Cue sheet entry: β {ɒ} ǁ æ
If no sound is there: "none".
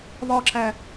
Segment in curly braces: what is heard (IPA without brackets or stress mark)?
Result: ɒ